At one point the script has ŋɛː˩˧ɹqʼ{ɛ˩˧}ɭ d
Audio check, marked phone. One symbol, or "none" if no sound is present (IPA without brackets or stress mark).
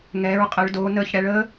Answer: ə˩˧